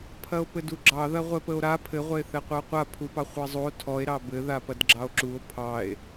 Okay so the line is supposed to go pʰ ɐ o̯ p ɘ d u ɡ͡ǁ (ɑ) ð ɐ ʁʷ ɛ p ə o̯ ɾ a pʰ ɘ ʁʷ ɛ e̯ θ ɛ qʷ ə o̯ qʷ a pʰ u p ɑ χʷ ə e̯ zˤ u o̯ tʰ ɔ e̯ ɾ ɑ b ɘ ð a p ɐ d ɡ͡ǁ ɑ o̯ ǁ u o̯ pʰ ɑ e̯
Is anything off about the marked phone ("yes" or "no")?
no